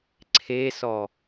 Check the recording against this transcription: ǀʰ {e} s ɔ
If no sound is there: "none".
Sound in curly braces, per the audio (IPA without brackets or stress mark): e